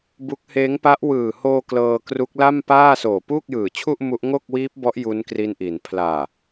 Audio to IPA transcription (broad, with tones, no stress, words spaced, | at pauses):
bu˦˥k̚ heː˦˥ŋpa˦˥ʔ wɯː˨˩hoː˧ klɤː˧ kru˦˥k̚la˥˩mpaː˥˩ soː˨˩puː˥˩k̚jɯː˨˩t͡ɕʰu˥˩ʔ mu˦˥ʔ ŋo˥˩k̚wiː˦˥p̚bɔ˦˥ʔ ju˦˥nkri˦˥nʔi˩˦n pʰlaː˨˩